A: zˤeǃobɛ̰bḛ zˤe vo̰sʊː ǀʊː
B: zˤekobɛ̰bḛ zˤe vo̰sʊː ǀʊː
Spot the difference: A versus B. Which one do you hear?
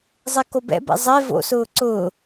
B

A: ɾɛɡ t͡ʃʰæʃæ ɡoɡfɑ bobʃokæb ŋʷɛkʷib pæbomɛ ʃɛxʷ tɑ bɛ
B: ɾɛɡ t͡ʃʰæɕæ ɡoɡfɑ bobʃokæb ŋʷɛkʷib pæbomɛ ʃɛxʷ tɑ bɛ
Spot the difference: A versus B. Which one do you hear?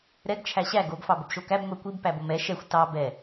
B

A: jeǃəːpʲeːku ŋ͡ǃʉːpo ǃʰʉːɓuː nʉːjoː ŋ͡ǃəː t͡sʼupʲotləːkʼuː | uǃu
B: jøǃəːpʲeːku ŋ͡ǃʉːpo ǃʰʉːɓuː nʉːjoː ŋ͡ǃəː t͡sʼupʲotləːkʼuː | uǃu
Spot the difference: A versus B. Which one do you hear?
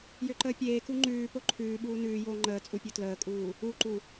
B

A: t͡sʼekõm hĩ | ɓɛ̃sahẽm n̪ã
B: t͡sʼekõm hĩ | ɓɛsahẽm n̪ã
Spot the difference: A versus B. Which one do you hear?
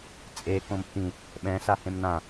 A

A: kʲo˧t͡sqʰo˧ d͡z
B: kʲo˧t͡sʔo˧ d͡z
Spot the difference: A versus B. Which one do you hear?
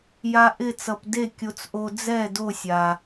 B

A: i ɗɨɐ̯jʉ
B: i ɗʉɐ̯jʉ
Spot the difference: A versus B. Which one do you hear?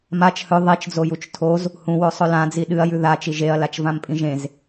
A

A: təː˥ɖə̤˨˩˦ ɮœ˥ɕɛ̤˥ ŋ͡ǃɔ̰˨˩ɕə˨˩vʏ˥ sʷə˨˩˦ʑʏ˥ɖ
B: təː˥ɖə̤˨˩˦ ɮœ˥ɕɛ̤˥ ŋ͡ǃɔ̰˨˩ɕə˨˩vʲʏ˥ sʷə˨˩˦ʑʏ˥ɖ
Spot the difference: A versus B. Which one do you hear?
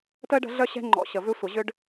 A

